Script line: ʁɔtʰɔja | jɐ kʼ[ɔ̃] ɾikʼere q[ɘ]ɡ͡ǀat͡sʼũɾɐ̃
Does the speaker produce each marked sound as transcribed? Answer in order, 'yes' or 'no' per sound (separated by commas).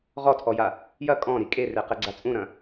yes, yes